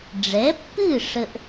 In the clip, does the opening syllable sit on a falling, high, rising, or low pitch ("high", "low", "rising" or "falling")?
rising